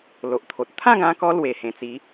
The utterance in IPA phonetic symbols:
l o˨ ʔ t̪ʰ o˨ t̚ t̪ʰ ã˥˧ ɡ ã˧ k ɔ˧ l w e˨˩ h ẽ˨˩ t͡s i˨˦

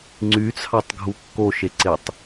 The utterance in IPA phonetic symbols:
ŋ͡ǀ y t͡sʰ ɑ tˤ ɡʱ u kː o ʃ e ǀ e tˤ

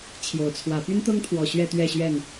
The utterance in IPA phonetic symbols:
t͡ɕʰ j o˨˦ ʊ̯ t͡sʰ w ä˨˦ p y˦ n t̪ ɤ˦ ŋ t̪ʰ w ɔ˨˩ ɕ ɥ ɛ˥˨ t̪ ɥ ɛ˥˨ ɕ ɥ ɛ˥˨ n

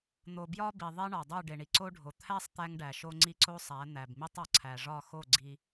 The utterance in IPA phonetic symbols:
n̪ o˨ b j ɒ˦ b i˨ ðˤ e˦ ɳ ɒ˨ dˤ u˦˨ ɖ e˨ ɳ i˨ ǀ o˦ ɖʱ o˨ t̪ʰ æ˦ sˤ t̪ æ˦ ŋ ɖ æ˨ ʃ o˦ ŋ͡ǀ i˦ ǀ o˦ sˤ æ˨˦ n̪ æ˨ b m i˦ tˤ ɒ˨ ǀʰ æ˨ ʐ ɒ˦˨ x o˦˨ ɡ͡ǀ i˦

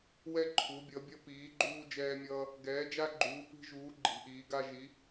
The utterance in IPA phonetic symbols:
w ɛ˦ ǃʰ u˨˦ bʲ ʌ˨˦ bʲ ʌ˦ p iː˨˦ ɡ͡ǃ uː˦ d͡ʒ ɛː˦ mʲ ʌː˦ | ɡ ɛː˨˦ d͡ʒ a˦ ɡ͡ǃ uː˨˦ p i̤˦ ʒ uː˨˦ ɡ͡ǃ i̤˨˦ ʔ iː˨˦ ɡ a˦ ʒ i˨˦

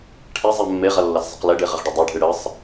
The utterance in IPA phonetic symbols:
ʈʰ e zˤ e mː e ʁ ɐ lː ɐ s zˤ ɐ q l e ɖ e ʁ ɘ ʁ ɖ ɘ dˤ e ɖʱ ɨ ɽ ɘ sˤ

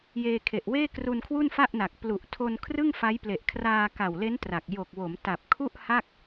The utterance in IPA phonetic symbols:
j eː˧ kʰ e˨˩ ʔ w eː˥˩ k r u˧ n kʰ w u˥˩ n f a˥˩ ʔ n a˨˩ k̚ p l u˨˩ ʔ tʰ o˧ n kʰ r ɯ˥˩ ŋ f a˦˥ j p l e˨˩ ʔ kʰ r aː˧ k a˨˩ w l e˦˥ n t r a˨˩ k̚ j o˨˩ k̚ w o˩˦ m t a˨˩ p̚ kʰ u˥˩ ʔ h a˥˩ k̚

